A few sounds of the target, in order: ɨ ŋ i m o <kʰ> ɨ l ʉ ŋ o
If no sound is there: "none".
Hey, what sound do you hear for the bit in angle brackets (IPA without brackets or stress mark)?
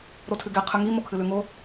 kʰ